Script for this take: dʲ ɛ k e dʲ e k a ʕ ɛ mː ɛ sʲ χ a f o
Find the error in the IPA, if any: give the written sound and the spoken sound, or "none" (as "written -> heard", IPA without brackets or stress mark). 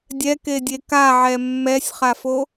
none